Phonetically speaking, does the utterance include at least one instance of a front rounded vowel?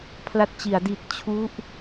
no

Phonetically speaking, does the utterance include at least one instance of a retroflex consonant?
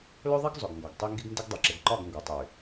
no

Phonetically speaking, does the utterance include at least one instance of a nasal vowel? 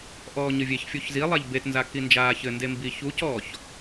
no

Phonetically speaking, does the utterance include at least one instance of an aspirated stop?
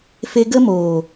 no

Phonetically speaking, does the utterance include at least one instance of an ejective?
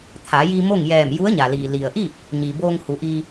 no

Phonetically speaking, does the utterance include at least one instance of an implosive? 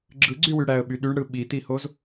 yes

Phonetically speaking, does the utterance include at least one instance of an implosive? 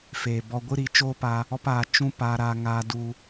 no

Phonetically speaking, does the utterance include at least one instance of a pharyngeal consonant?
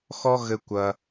no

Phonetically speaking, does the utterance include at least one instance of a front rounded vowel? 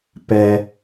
no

